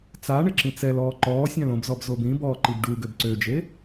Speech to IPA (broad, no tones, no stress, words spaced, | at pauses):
t͡sa ɳeǁĩt͡sɛlɔː ǃɔː sʲãlõbzɔb zobĩbɔː ǃibɖuɡøb ǀød͡ʒe